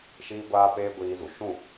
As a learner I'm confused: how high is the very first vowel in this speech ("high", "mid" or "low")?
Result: high